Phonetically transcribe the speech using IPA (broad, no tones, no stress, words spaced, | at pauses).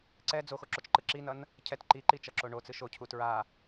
ǀɛ d͡zoxoǁot͡ʃǃɯ ǁinʌn | cʰɛt ǃiǃit͡ʃʌǁo ɳot͡sɯ ʃocʰu tɹa